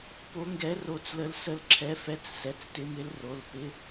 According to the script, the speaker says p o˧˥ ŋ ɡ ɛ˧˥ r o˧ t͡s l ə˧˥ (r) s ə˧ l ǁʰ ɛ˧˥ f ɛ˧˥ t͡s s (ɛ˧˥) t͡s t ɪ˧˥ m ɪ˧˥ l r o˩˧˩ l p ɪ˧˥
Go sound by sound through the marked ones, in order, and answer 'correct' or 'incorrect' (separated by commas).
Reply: incorrect, incorrect